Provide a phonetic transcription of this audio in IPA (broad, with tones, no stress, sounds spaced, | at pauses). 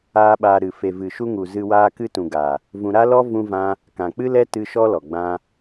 aː˦ ɓ aː˧ ɾ ɨ˨ f e˨ v ɨ˨ ʃ u˧ ŋ u˨ z ɨ˧ w aː˦ k ɨ˦ t ũ˨ ɡ a˨ | v ũ˧ ɾ a˦ l ɔ˦ v ũ˦ v ã˦ | k ã˨ k͡p ɨ˦ l ɛ˦ t ɨ˦ ʃ ɔ˦ l ɔ˨ ɡ͡b ã˦